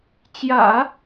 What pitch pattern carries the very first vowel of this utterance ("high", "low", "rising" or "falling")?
low